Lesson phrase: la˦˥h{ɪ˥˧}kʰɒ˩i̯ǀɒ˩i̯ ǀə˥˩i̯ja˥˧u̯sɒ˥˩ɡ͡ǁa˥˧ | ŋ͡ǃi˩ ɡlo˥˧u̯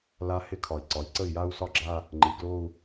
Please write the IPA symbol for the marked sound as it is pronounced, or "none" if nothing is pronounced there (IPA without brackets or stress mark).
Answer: ɪ˥˧